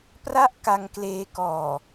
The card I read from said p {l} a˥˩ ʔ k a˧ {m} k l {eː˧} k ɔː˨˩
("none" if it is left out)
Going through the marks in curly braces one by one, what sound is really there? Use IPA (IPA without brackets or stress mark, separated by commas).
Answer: r, ŋ, eː˧